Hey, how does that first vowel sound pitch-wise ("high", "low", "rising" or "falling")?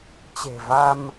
low